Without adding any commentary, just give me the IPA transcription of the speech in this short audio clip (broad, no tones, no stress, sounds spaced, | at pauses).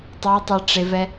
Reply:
tˤ ɤ ɪ̯ tˤ a ʈ͡ʂ e v ɛ